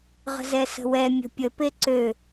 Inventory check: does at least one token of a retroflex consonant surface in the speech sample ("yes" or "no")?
no